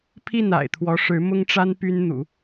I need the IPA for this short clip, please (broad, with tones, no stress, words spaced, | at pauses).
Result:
pʰi˥˩na̰˨˩ɪ̯ t̪ʰwɔ˧˥ʂɻ̩˧˥mʊ˥ŋʈ͡ʂa˥n py˥n n̪ṵ˨˩˦